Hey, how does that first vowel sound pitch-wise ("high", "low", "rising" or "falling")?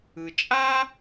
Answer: low